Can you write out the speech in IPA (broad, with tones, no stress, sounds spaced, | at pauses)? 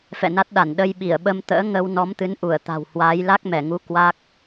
f ɛ̰˧˨ n a˦˥ t̚ ɗ a˧˩ n ɗ ə˧ j ɓ i˧˩ ə̯ ɓ ə˧ m t̪ ə̰ː˧˥ ŋ ə˧ w n ɔ˨˦ m t̪ ɨ˨˦ n ʔ u˧˩ ə̯ t̪ a̤˨˩ w h w aː˨˦ j l a˦˥ k̚ m ɛ˧˩ ŋ u˨˦ k w a˦˥ k̚